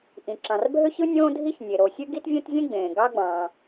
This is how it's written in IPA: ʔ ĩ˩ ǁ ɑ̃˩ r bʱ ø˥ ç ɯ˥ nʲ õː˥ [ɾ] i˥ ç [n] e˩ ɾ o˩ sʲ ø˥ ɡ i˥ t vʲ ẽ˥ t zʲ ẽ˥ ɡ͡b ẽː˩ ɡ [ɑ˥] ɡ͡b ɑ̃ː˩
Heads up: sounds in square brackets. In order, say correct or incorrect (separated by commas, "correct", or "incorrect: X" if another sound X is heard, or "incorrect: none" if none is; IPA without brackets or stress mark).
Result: incorrect: dʱ, incorrect: nʲ, correct